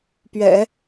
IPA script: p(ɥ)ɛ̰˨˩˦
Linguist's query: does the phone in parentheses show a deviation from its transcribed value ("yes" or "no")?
no